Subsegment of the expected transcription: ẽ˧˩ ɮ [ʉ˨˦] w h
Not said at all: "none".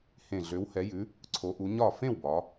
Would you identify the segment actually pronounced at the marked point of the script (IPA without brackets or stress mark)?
ø˨˦